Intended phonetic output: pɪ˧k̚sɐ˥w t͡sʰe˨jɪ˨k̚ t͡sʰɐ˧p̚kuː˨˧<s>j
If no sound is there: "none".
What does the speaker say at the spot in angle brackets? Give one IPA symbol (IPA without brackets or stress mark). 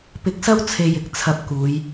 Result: none